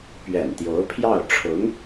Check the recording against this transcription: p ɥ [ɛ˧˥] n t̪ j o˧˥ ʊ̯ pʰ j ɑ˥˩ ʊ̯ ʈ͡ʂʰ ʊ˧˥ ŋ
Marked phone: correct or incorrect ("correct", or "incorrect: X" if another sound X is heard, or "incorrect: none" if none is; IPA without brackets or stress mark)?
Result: incorrect: ɛ̰˨˩